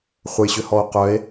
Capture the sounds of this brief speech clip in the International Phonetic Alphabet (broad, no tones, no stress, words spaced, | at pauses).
χʷəjɕʏhɔo̯ qœe̯